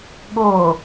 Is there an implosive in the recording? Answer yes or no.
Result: yes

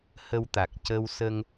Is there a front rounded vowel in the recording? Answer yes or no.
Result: no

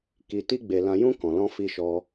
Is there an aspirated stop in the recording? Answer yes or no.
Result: no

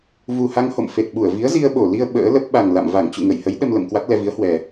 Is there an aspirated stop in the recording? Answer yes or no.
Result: no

